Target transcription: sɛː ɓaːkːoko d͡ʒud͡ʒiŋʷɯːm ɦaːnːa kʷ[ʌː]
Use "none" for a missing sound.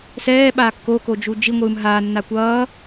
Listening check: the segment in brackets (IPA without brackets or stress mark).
ʌː